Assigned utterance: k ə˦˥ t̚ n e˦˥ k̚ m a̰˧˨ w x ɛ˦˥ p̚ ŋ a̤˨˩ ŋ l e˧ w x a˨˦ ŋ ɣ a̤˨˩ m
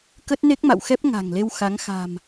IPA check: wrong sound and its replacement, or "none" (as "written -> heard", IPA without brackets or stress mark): ɣ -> x